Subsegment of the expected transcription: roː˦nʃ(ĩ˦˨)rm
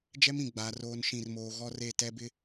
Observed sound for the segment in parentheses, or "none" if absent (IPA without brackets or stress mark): ĩ˦˨